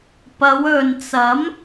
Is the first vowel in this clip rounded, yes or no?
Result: no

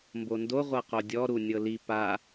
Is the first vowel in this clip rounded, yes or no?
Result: yes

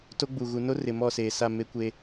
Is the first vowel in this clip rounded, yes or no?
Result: yes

